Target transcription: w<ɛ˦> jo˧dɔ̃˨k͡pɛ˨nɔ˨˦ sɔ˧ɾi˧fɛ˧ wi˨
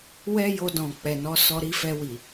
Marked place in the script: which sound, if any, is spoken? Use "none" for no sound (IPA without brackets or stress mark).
ɛ˦